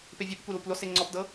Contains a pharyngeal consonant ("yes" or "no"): no